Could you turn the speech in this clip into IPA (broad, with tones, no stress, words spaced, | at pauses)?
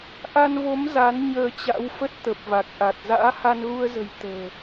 ʔa˧nvo˨˦m za˨˦n ɲəː˧t͡ɕa̰˧˥wfə˦˥t̚ t̪ə˨˩p̚va˨˩k̚ʔa˨˩t̚ za̰ː˧˥ha˧nɣu˧ə̯zə̤˨˩j t̪ə̤ː˨˩